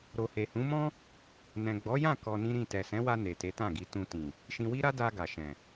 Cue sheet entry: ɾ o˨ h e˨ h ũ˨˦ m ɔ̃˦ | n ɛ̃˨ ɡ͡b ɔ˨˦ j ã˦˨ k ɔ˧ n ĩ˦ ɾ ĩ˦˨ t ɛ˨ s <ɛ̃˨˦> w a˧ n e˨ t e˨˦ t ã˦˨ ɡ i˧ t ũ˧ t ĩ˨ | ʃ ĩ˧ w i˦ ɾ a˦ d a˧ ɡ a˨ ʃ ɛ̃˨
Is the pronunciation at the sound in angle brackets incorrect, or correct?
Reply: correct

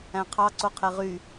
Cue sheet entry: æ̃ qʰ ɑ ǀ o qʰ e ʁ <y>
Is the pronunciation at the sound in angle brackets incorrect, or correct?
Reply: correct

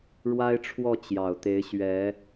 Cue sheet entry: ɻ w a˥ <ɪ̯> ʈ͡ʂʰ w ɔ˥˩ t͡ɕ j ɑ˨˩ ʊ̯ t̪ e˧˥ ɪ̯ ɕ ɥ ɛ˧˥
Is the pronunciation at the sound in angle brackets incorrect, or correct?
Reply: correct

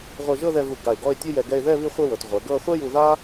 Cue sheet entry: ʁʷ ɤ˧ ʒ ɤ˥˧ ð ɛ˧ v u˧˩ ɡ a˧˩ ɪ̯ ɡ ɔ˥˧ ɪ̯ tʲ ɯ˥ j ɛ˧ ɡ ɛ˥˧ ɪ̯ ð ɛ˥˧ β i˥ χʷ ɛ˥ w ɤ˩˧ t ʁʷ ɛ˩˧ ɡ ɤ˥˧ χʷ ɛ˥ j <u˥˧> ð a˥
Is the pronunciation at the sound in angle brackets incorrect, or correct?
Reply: incorrect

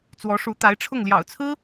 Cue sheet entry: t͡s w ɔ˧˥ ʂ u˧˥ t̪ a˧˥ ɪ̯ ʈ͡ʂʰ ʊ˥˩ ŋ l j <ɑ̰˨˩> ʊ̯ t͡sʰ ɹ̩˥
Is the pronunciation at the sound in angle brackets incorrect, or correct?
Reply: correct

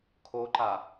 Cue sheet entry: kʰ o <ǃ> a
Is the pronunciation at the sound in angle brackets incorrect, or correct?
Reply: correct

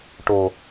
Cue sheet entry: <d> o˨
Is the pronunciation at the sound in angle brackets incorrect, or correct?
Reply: incorrect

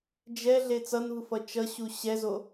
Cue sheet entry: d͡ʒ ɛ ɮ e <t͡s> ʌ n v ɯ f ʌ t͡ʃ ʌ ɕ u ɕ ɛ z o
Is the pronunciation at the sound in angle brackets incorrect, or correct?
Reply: correct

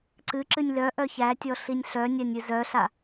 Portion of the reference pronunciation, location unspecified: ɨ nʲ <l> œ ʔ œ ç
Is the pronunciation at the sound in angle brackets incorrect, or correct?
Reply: correct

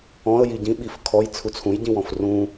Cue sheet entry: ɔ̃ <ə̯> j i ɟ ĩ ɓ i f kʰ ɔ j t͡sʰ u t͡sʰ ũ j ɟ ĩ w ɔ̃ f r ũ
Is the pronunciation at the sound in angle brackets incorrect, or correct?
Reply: correct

